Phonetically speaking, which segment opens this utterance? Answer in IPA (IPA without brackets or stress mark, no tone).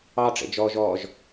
ɑ